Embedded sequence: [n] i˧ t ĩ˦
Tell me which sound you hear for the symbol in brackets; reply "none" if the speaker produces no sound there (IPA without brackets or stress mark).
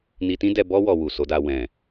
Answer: n